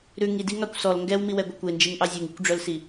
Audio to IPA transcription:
ɾ ʉ ŋ i d i ŋ ɑ kʷ s ɔ l ŋ ɡ ɛ w m i w ɛ ɡʷ e kʷ e n d͡ʒ i ŋ ʔ ɑ zʲ u ŋ i kʷ ɖ͡ʐ œ l s i

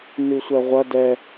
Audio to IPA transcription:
n ʉ sʷ ɛ ʁʷ ɐ d ɛ

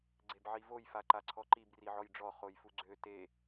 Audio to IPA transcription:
ɡ͡ǀ e b ʕ i v o j f a ǃ a ǀʰ ɔ ǃ i b r i ʕ ɔ j ɖ͡ʐ ɔ χ o j f u ɡ͡ǀ ø t e

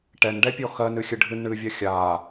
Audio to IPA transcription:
ʈ ɛ n ɖ ɛ pʲ ɔ x ɜ n ɨ xʲ ɨ ɖʱ ɨ n ɳ ɨː vʲ ɜ xʲ aː

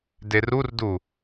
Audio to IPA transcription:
d e r u r d u

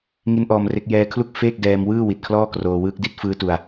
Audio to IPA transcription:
ŋ i˦˥ n ʔ ɔː˧ m r e˦˥ k̚ j ɛː˧ kʰ l u˥˩ k̚ f eː˥˩ k̚ d ɛː˧ m w ɯː˥˩ w i˨˩ t̚ kʰ l ɔː˥˩ k r oː˧ w ɯː˦˥ k̚ d i˥˩ t̚ f ɯː˦˥ t u˧ a̯

